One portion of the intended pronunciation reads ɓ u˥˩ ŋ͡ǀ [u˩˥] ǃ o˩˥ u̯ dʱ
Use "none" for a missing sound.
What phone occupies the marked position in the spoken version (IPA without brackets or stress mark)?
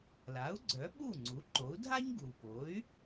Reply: u˩˥